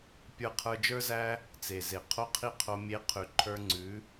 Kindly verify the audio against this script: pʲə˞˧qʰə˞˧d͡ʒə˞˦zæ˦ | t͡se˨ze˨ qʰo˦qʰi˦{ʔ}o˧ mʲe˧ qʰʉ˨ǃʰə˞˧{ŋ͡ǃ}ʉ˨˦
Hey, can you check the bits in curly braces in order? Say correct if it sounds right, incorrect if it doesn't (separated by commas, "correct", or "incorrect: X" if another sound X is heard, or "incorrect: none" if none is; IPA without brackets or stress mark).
incorrect: qʰ, incorrect: ŋ͡ǀ